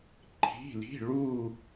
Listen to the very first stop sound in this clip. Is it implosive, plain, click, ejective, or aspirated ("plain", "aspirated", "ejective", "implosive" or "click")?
click